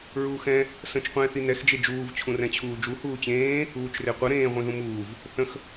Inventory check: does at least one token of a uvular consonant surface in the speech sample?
yes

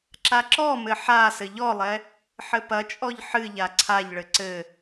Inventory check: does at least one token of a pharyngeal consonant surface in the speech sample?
yes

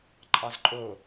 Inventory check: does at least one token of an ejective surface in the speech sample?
yes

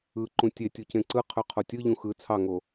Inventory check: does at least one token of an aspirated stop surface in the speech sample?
yes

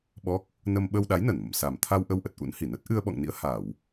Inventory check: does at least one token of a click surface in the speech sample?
no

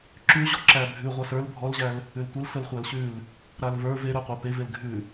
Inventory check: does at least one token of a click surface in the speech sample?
yes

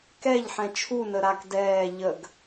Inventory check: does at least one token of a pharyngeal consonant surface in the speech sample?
yes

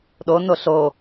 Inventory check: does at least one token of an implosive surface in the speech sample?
yes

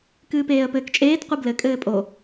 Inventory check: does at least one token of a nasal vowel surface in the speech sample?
no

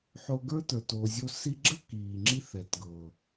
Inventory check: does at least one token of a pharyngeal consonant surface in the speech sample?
yes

